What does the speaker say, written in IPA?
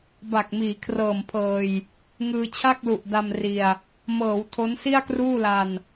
b a˨˩ k̚ m iː˩˦ kʰ r ɤː˨˩ m pʰ ɤː˧ j | ŋ ɯː˧ t͡ɕʰ a˥˩ k̚ l u˨˩ ʔ d a˧ m r i˧ a̯ | m ɤː˩˦ w tʰ o˦˥ n s i˥˩ a̯ k r uː˥˩ l a˧ n

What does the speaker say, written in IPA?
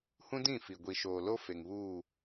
h ũ˦ d ĩ˦˨ f i˨ ɡʷ i˨ ʃ oː˨ l o˦ f e˨ ŋ β uː˦˨

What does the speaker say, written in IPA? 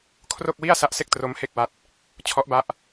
kʰ r o˥˩ k̚ w i˥˩ a̯ s a˦˥ ʔ s e˥˩ k̚ t r o˦˥ m h e˥˩ k̚ w a˦˥ t̚ | t͡ɕʰ ɔ˦˥ ʔ b a˦˥ ʔ

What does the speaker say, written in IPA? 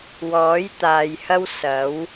w ɔː˨˥ j t̪ aː˨ j h ɐ˥ w s ɐ˨˥ w

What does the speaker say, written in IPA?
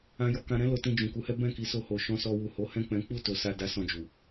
ã˧ j ɔ˧ k ã˧ ɾ ɛ̃˦ l o˧ t ĩ˧ d͡ʒ ũ˨ k u˨˦ h ɛ˦ b ɛ̃˦˨ k i˨˦ s o˧ h o˨ ʃ ɔ̃˨˦ s ɔ˧ w u˨ h o˨˦ h ɛ̃˦˨ k͡p ɛ̃˨˦ k͡p u˦˨ t o˨ s a˧ d a˦ s ɔ̃˦˨ d͡ʒ u˨

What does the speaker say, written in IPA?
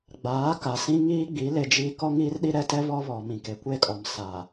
ɡ͡b aː˨˦ k a˨ s ĩ˦ ŋ iː˦ ɡ͡b i˨˦ l e˦ d͡ʒ iː˦ k ɔ˦ ŋ iː˦ r ɗ i˦ ɾ ɛ˦ t ɛ˦ β ɔ˦ β ɔ˨ m ĩ˨ k e˨ kʷ e˦˨ kʼ ɔ˨ m s a˨

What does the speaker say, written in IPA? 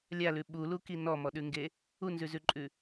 lʲ a l ʉ ɓ u l u k i n ɔ m ɔ ɗ ʉ ŋ ɡ e | u n z ʉ z ʉ ǃʼ ʉ

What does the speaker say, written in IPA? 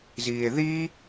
z iː e̯ ð i

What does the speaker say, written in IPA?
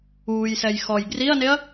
uː j s ɛ j x ɔ j ɡ r i ɐ̯ n e ɐ̯

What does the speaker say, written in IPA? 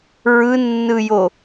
ɹ ɯ nː ɯ j o

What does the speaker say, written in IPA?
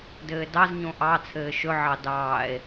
d ɘː d ɑ z ɲ õ ʔ ɑ t͡sʰ ɘː ʃ ɵ ʕ ɑ d ɑː e̯

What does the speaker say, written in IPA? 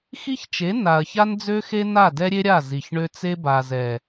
x i˦ ç t͡ʃ e˨˦ n a˨ ɐ̯ ç a˦ n d͡z ø˦ x e˦ n a˦˨ d ɛ˦ ɾʲ e˦ ɾʲ a˦˨ z i˨ ç ɳ ø˦ t͡s e˦ b a˨ z ɛ˨

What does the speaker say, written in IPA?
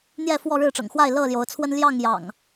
n̪ j ɛ˥˨ f w ɔ˥˨ ɻ ɻ̩˥˨ ʈ͡ʂ ɤ̰˨˩ ŋ x w a˥˨ ɪ̯ l ɤ˥˨ l j o˨˦ ʊ̯ t͡sʰ w ə˦ n l j ɑ˥˨ ŋ j ɑ̰˨˩ ŋ

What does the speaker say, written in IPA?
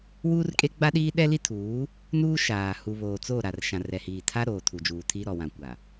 w uː˦ r kʼ e˦ ɡ͡b a˦ ɗ iː˦ ɗ ɛ˦ l i˦ tʰ uː˨˦ | n uː˦ ʃ aː˨ h u˨ β oː˨ t͡s o˦˨ ɾ a˨ r ʃ ã˨ r ɛ˨ h iː˨ tʰ a˦ ɾ oː˨ tʰ u˨ d͡ʒ uː˨ tʰ i˦ ɾ ɔ˨ w ã˨ kʷ a˨

